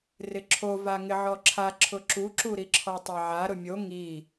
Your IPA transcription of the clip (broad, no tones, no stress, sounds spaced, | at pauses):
r ɪ ǁʰ o v a ŋ ɪ ʕ ɔ ǁʰ a ǁʰ ʊ ǁ u ǁ u ɾ i ǁʰ ɔ tˤ ɛ ʕ a ɾ ʊ mʲ o ŋ i